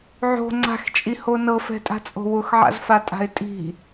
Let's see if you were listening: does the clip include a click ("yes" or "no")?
yes